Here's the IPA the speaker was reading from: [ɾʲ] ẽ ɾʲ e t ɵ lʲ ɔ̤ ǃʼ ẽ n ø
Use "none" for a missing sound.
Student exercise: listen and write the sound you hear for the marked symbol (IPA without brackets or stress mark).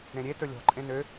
ɾ